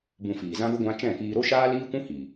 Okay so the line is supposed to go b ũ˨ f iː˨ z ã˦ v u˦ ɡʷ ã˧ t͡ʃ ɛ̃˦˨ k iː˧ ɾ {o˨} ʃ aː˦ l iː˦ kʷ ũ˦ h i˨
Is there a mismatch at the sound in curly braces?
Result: yes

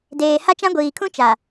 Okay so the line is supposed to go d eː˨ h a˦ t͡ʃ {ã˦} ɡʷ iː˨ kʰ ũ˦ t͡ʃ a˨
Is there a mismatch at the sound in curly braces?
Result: no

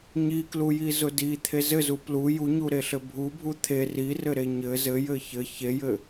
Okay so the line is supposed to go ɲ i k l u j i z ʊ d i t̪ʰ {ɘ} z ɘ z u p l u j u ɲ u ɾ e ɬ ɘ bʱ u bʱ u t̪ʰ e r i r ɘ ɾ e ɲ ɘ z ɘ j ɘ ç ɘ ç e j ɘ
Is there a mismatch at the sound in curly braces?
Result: yes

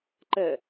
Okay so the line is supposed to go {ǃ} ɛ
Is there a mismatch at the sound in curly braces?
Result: no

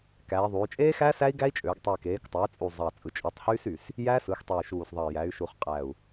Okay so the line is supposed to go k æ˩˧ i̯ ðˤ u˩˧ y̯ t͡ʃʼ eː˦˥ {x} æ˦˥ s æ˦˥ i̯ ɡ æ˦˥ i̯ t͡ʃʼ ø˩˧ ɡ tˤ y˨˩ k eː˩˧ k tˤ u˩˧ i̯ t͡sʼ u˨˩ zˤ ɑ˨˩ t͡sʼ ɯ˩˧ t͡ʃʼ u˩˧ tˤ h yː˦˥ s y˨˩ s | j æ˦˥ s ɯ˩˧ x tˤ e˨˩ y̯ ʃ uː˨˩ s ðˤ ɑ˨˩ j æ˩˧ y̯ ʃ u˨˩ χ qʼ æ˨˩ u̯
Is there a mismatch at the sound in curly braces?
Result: no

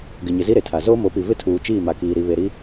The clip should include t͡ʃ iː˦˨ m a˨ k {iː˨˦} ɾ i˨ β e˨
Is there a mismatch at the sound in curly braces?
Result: yes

